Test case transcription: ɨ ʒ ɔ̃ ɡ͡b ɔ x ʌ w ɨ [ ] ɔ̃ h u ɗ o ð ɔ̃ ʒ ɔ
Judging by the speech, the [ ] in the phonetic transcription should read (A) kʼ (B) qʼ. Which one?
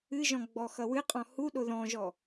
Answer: B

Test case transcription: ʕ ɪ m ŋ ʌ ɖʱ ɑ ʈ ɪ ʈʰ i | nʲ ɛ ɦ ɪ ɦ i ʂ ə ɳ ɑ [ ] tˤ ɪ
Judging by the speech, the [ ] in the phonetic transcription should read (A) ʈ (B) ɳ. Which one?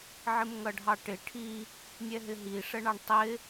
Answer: B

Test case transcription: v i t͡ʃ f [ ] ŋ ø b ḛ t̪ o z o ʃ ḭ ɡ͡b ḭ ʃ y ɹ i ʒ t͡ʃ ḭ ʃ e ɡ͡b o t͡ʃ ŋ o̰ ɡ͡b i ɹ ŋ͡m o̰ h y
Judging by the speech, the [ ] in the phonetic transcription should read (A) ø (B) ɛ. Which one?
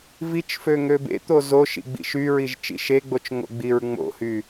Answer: A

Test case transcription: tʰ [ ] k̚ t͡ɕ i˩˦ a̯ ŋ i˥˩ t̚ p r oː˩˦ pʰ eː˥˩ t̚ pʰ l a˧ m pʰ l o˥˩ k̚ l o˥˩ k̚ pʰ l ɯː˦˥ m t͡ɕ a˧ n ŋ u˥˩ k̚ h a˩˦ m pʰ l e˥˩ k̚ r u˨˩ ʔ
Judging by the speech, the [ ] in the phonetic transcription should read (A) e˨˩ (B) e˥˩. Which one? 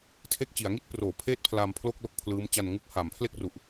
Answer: B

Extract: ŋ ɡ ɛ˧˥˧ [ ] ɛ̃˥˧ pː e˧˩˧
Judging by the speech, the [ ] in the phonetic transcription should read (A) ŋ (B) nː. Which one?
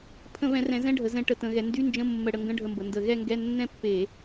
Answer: B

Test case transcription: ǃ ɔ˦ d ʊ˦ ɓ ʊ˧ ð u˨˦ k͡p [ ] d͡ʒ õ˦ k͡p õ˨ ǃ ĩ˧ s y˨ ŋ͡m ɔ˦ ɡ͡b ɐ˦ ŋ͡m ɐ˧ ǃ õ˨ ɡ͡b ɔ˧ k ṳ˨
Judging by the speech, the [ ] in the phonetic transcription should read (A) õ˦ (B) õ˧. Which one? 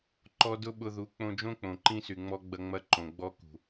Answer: B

